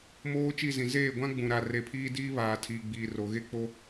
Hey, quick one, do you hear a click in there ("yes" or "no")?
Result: no